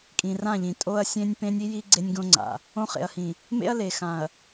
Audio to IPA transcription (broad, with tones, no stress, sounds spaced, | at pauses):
kʼ ĩ˨ r ã˦˨ ʎ ĩ˨ tʼ o˦ ɐ̯ sʲ ẽ˦ nʲ p ẽ˦ nʲ i˦ j i˦ ɡ͡ǀ e˦ nʲ ɡ õ˦ ŋ͡ǀ a̰˨ | õ˦ χ ḛ˨ ɐ̯ h ĩ˨ | m ḛ˦ ɐ̯ l e˨ x ã˨ ɐ̯